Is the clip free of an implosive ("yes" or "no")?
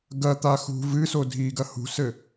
yes